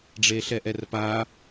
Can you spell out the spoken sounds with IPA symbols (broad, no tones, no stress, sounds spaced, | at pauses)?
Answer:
ɖ͡ʐ e ɬ ɛ ʔ ɛ r p a